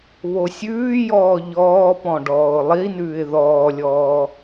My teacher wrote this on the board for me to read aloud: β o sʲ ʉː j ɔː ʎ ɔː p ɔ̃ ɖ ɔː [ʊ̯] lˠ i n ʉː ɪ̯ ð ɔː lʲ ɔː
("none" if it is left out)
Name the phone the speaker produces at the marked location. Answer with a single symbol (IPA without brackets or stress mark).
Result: ʊ̯